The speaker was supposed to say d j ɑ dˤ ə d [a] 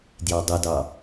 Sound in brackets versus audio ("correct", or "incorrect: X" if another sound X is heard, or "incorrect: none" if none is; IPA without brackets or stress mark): incorrect: ɑ